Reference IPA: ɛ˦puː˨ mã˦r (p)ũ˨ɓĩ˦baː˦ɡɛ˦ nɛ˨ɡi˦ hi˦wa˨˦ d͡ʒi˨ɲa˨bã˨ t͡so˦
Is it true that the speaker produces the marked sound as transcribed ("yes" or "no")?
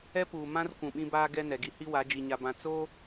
no